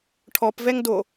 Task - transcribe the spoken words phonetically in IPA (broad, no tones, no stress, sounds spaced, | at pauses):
ʈʰ ɔ p v ɛ ŋ d o